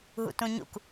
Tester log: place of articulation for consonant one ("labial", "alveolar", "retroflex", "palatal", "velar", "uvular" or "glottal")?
glottal